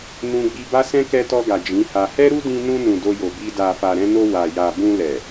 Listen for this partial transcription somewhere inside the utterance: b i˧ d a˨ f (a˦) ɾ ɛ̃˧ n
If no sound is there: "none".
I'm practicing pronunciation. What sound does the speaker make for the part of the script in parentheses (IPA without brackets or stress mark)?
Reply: a˨